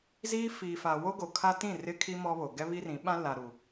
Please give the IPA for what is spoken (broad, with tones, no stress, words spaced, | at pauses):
ziː˦ fiː˨fa˨ wo˦ɡo˨kʰa˦tĩ˦˨ rɪ˦kʰi˦ mɔ˦βo˨ ɡɛ˦βi˦rĩ˨˦ ɓã˦la˨ɾu˨